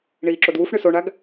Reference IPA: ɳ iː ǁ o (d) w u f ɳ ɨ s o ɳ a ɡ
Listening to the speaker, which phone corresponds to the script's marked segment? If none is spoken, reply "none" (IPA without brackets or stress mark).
d